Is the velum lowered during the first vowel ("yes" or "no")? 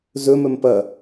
no